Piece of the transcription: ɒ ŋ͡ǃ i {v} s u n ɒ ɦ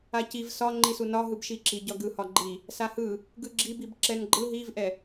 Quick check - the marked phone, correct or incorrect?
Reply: incorrect